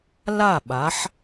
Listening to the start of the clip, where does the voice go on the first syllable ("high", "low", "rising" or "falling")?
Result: falling